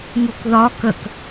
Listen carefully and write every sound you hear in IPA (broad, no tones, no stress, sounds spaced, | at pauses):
ŋ u k ð ɒ k ə k